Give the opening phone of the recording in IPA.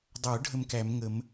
dˤ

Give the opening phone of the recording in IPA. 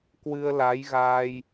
k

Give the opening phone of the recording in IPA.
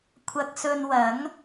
kʷʰ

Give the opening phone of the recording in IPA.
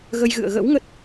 ɣ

